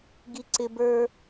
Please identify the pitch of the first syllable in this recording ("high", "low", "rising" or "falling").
high